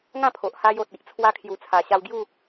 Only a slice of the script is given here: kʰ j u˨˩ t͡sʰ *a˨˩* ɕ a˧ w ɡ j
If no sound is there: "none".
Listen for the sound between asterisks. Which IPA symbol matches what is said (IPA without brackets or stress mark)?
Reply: a˨˩